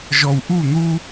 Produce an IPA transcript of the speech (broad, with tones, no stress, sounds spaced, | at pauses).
ʒ ɔ˨ w ʔ u˦˨ n̪ u˦